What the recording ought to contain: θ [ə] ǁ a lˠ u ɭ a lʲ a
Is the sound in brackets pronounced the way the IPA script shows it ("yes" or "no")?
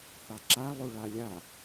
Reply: no